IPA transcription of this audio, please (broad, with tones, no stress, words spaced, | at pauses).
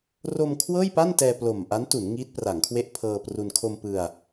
ro˧m kʰwɤː˥˩jpa˥˩n tɛː˧plo˨˩mʔa˦˥ntu˩˦n ŋi˦˥t̚pra˩˦ŋkʰwe˦˥ʔ pʰɤː˧pru˧n kʰo˧mpɯ˧a̯